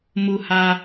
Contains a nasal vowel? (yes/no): no